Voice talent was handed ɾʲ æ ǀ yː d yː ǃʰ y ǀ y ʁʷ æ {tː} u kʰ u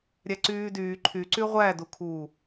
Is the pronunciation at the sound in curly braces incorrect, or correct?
incorrect